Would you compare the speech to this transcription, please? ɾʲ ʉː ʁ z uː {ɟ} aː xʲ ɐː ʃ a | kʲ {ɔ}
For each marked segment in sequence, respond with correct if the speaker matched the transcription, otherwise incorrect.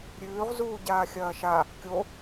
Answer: correct, incorrect: o

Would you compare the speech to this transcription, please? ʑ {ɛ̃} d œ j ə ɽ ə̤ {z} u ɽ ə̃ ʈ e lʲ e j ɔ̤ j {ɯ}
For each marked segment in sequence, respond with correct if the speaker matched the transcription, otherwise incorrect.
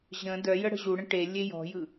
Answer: incorrect: ə̃, incorrect: ʑ, correct

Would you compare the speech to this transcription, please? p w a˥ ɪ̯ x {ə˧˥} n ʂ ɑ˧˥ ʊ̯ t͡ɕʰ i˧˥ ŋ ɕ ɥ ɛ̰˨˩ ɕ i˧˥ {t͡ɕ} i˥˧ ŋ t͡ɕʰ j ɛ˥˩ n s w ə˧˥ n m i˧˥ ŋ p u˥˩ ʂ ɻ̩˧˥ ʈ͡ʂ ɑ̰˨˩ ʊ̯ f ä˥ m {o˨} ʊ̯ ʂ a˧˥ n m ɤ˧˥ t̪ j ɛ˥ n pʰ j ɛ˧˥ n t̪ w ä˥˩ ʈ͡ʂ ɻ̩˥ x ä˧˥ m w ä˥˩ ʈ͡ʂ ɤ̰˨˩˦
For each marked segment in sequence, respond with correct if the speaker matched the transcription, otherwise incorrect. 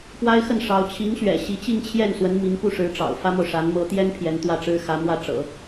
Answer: incorrect: ə˥˩, correct, correct

